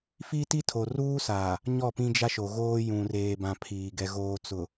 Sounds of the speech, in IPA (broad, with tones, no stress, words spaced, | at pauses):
fi˦ti˦tʰo˨ ruː˦saː˨ | ɲɔ˦˨pĩ˦d͡ʒa˦ʃo˨ ɣoː˦ jũ˨reː˨bã˨ pʰiː˨ ɡɛ˨ ɣoː˨t͡sʊ˨